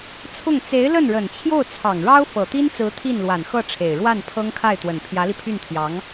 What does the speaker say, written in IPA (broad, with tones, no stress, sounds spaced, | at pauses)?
t͡sʰ ʊ˥˩ ŋ t͡s e˧˥ ɪ̯ l ə˥˩ n ɻ ə˨˩ n t͡ɕʰ j o˥˩ ʊ̯ t͡sʰ ɑ˨˩ ŋ ɻ ɑ˥ ʊ̯ f ɤ˨˩ t̪ i˥ n t͡s ɹ̩˧˥ t̪ʰ i˥˩ n l w a˨˩ n x ɤ˥˩ ʈ͡ʂʰ e˨˩ ɪ̯ ɻ w a˥˩ n pʰ ɤ˥ ŋ kʰ a˥˩ ɪ̯ t̪ w ə˨˩ n pʰ j ä˧˥ l i˧ pʰ y˥˩ n t̪ʰ j ɑ˧˥ ŋ